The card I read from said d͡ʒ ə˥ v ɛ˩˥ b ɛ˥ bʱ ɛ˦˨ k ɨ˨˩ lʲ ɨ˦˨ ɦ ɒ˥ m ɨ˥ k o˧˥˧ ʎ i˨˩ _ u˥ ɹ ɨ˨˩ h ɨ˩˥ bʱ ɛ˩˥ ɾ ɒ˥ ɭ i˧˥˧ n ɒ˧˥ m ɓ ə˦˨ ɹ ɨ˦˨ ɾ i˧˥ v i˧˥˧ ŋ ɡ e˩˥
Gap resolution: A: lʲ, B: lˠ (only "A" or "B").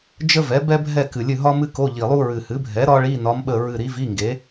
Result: B